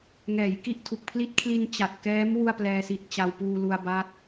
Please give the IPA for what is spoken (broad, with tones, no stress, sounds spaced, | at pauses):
ŋ ɛː˩˦ j k i˥˩ ʔ tʰ u˨˩ k̚ pʰ l i˦˥ t̚ kʰ l i˧ n t͡ɕ a˨˩ t̚ k ɛː˦˥ m w u˥˩ a̯ p l ɛː˧ s i˨˩ t̚ t͡ɕ a˧ w p uː˧ l u˧ a̯ b a˦˥ t̚